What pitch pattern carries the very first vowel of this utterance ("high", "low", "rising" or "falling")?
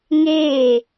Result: falling